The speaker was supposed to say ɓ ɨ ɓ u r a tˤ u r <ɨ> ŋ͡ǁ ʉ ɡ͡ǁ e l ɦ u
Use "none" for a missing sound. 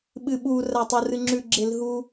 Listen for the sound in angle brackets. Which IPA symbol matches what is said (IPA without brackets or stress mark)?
ɨ